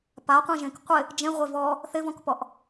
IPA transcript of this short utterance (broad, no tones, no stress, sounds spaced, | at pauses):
p a qʷ ĩ ʒ ẽ k qʷ ɪ | d͡ʒ ẽ ʁʷ e v ɔ | θ ɪ v ɔ̃ k p ɔ ʔ